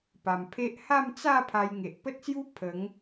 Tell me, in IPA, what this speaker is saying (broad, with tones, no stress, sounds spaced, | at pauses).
p a˨˩ m pʰ e˦ ʔ h a˥˧ m t͡s a˥˧ pʰ a˧ j ŋ e˨ ʔ p ə˦ t̚ s j u˦ pʰ ə˨˦ ŋ